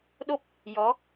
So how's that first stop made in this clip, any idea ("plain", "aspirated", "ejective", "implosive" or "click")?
implosive